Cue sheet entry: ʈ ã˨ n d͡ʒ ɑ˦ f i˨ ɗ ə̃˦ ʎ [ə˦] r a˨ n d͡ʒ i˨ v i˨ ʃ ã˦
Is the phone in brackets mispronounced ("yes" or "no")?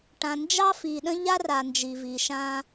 yes